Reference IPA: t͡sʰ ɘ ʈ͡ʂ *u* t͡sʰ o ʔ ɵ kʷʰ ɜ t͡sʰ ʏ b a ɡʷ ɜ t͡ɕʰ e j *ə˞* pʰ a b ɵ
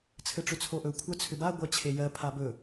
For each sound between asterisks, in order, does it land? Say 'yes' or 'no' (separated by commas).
no, no